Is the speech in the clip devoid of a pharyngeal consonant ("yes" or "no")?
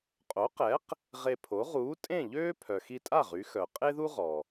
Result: yes